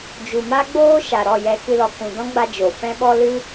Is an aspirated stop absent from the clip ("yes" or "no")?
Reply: yes